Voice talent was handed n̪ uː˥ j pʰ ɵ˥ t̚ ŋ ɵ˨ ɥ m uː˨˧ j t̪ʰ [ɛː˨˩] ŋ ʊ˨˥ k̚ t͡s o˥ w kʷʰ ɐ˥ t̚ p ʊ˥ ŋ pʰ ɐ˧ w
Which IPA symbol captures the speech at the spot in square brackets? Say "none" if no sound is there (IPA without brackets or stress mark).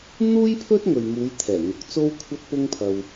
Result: ɛː˨˩